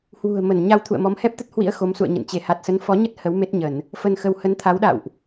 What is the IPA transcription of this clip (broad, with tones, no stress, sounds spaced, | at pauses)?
h w ṳ˨˩ ə̯ m ə˧˩ n ɲ a˧ w t̪ʰ ṵ˧˨ ə̯ m ɔ˨˦ m h ɛ˦˥ p̚ t̪ ə˦˥ t̚ h w ḭ˧˥ ə̯ x o˨˦ m s ṵ˧˨ ə̯ ɲ ə̰˧˨ n t͡ɕ e˧˩ h a˨˩ t̚ s ə˨˦ n f ɔ˨˦ ɲ ə˦˥ t̚ h ə˨˦ w m e˦˥ t̚ ɲ ə˧˩˨ n | f ə˧ n x ə˧ w h ə˨˦ n t̪ʰ a˨˦ w ɗ a̰˧˨ w ʔ